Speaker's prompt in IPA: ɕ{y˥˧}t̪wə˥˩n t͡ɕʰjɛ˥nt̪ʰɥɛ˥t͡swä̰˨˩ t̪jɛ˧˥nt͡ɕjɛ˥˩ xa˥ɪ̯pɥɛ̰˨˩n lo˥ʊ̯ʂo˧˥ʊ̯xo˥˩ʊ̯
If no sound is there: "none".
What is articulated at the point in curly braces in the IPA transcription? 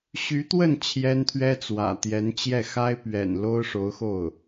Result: y˧˥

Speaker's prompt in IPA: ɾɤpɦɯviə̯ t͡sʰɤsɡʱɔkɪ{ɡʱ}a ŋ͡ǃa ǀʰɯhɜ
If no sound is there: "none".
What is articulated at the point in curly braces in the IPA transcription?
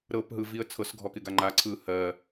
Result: ɡ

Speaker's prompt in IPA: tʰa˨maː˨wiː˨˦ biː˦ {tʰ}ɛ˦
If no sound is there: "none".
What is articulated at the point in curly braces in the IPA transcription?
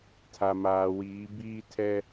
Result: tʰ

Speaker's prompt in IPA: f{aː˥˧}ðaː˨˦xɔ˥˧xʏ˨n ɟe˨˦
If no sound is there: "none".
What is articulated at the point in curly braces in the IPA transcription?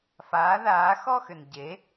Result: aː˨˦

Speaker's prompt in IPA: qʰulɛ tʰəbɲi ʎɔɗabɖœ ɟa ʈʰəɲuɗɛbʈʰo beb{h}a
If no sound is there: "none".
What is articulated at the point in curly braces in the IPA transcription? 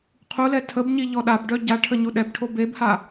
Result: h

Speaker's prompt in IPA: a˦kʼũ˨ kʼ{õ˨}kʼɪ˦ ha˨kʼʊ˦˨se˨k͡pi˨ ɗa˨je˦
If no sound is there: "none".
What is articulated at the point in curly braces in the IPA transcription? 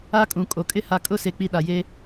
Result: o˨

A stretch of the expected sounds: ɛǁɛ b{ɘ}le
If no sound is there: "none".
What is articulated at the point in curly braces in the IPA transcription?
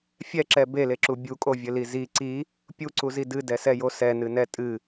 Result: e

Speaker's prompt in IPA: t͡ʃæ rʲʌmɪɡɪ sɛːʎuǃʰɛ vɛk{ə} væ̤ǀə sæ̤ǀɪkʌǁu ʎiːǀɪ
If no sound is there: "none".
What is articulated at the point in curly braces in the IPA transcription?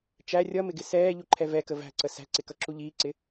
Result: ə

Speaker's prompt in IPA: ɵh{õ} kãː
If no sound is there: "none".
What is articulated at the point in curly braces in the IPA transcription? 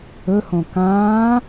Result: õ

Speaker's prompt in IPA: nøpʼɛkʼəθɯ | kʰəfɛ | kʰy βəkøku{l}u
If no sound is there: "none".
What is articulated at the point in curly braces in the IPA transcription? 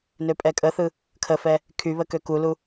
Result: l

